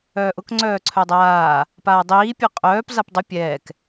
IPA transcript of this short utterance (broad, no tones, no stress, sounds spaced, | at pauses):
œː ʔ ʊ k ŋ͡ǀ œː ǀʰ œ dˤ aː | p aː dˤ iː pʲ ɵ qʼ œː p z a p dˤ ʊ pʲ ɛː k